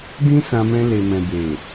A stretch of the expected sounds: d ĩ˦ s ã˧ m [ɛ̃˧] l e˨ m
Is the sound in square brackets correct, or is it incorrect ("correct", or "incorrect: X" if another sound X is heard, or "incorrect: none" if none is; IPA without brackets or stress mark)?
correct